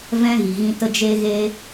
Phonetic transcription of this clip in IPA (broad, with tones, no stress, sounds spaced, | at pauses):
v ɛ̃˦ ɣ i˨ ɣ ĩ˧ t ə˧ d͡ʒ e˧ ɣ e˧